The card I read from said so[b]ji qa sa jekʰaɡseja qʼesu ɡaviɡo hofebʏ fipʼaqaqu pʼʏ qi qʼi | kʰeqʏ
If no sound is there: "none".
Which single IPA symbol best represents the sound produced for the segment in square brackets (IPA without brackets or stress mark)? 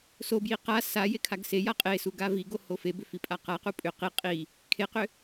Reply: b